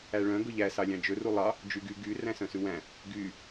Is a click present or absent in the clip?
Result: absent